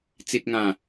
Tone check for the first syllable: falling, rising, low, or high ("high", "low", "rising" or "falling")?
low